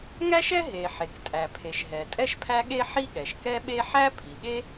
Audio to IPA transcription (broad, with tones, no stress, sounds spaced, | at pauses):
ŋ æ˥ ʃ ɛ˥ ɦ e˩ ħ e˩ k tʼ æ˩ pʰ e˩ ʃ ɦ ɛ˩ tʼ ɛ˥ ʃ pʰ æ˥ ɠ e˥ ħ i˥ ɠ ɛ˩ ʃ k ɛ˥ ɓ e˥ ħ æ˥ pʰ i˩ ɠ e˥